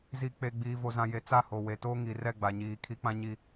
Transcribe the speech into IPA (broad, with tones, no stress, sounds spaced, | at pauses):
z i˨ k͡p e˨ ɡ͡b iː˨ v o˨ z ã˨ j e˨ t͡s a˦˨ h o˨ w e˨ t oː˦ ŋ i˨ r ɛ˦˨ ɡ͡b a˨ ɲ iː˨ kʰ i˦ k͡p ã˦ ɲ i˨